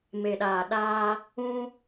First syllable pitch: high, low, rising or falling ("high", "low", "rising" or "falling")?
low